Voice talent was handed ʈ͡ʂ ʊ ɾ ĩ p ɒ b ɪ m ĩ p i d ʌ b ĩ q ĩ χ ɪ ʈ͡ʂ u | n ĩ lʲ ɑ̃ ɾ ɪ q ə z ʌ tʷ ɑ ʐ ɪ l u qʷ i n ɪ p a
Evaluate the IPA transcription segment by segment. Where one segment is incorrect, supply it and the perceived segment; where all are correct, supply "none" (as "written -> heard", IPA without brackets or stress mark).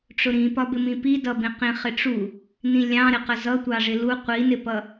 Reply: a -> ʌ